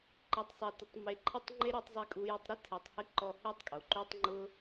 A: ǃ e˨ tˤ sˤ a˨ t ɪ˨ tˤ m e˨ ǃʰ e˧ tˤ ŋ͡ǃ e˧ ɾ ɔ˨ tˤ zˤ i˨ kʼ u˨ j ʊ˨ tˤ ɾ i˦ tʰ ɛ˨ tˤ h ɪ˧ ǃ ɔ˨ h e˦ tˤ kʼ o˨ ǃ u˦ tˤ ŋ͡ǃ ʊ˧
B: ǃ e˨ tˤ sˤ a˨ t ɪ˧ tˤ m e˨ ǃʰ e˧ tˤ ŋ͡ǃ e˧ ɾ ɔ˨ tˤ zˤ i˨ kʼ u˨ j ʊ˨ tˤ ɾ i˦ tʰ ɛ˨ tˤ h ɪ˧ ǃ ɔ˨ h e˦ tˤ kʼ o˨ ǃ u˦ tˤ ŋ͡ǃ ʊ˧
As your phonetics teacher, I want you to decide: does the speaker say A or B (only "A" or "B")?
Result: A